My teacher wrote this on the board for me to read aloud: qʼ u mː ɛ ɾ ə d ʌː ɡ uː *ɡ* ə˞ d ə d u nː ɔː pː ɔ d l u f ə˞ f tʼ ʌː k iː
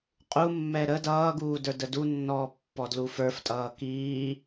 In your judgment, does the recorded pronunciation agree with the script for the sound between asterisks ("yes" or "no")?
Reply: no